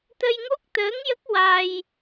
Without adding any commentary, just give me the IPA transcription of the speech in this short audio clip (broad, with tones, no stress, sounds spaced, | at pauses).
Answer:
t̪ ə˧ j ŋ o˦˥ k̚ t̪ əː˧˥ ŋ j ə˦˥ k̚ w a˧ j